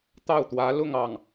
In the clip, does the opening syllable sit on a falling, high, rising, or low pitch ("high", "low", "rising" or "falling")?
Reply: falling